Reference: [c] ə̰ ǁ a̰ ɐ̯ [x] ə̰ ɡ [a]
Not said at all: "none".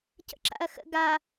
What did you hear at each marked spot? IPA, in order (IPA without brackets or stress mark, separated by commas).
c, x, a